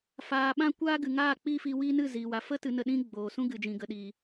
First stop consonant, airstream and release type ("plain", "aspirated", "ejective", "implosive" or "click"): implosive